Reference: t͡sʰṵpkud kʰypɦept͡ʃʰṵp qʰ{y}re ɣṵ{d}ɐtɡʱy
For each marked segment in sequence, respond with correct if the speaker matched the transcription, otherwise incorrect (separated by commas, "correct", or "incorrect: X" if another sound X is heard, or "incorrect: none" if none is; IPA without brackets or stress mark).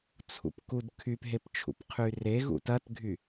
correct, incorrect: t